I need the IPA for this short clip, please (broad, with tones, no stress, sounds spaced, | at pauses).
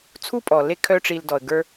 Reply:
t͡sʰ u˥ pʼ ɔ˩ l e˦ kʰ œ˦ ʈ͡ʂ i˨ l d ɔ˩ ə̯ ɡ ə˞˦